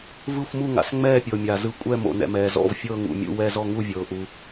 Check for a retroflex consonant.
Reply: absent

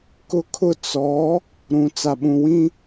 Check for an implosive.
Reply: present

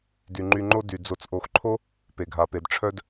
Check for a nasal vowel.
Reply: absent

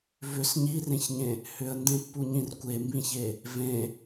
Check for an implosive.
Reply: absent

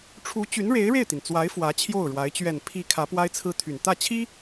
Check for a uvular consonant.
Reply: absent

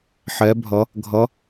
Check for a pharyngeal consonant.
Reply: present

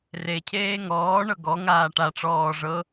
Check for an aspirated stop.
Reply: present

